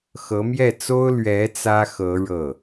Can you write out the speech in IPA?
xɤ˧˥mjɛ˥˩t͡so˥ʊ̯ lɥɛ˧˥ t͡sä˥xɤ˧˥ ɻɤ˥˩

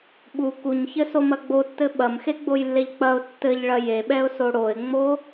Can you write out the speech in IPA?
ɓu kuɲçɘsomɐ ɡ͡botːɘ ɓɐmxeɡ͡bojlːeʎ k͡pɐʊ̯ tːɘʎɭɐ jeɓɛʊ̯so ɽoɪ̯ŋ͡mo

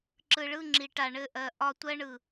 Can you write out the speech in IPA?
ǁɯ˨ɭɯ˦˨ŋ͡ǁi˨ ʈa˨ɳɘ˦˨ ʔɜ˨ʔɒ˦tʷɜ˦ɳɯ˨

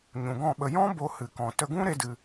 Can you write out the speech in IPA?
ɲũ˨ɡɔ̃˦˨ɓə˧ jɔ̃˦ bo˧hɨ˨ kɔ̃˨ tə˧ɡũ˦ ɾe˦dɨ˧

